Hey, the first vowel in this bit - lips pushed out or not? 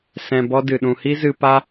no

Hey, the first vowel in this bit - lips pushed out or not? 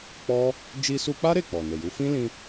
yes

